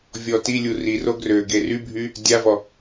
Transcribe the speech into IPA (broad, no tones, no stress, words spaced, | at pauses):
vʲɔtilʲu riro ɡrøɡe rybʱy | dʲavɔ